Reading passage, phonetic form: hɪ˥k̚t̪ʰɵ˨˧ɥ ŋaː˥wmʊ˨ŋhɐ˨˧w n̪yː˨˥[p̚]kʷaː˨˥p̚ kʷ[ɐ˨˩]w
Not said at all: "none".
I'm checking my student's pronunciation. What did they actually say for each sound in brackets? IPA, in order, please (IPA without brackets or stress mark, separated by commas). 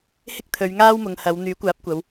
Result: none, ɐ˨˧